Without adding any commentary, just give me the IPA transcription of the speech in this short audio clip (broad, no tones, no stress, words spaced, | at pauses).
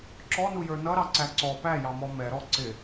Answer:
ǁɔnujə˞ nʌɾɑǀæ ǀɔ pæjɑmɔ mɛɾɔ ǀɪ